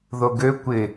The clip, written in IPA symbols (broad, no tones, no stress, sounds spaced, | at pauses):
ð o ɡ ø kʷ ɪ